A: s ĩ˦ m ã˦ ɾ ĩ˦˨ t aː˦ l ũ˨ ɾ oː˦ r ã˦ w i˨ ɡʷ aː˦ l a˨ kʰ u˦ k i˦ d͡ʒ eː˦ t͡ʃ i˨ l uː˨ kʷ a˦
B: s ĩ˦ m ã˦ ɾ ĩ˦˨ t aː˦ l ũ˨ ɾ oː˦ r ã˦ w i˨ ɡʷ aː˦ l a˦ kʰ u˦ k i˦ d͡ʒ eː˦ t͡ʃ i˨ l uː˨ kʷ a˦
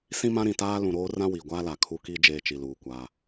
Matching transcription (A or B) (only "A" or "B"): A